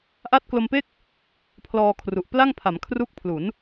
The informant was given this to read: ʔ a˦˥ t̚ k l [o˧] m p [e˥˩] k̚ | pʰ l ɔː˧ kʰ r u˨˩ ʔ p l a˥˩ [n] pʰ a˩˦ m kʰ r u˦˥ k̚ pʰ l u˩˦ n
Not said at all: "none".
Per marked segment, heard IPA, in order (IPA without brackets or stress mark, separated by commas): o˧, e˥˩, ŋ